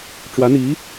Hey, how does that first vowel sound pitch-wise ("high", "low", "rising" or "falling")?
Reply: rising